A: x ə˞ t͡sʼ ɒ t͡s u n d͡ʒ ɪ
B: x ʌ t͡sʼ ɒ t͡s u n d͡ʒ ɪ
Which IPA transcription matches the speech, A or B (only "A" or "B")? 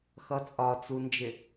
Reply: B